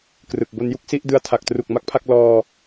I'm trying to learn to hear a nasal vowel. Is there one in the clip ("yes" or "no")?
no